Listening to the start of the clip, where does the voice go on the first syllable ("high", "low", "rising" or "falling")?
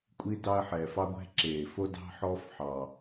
high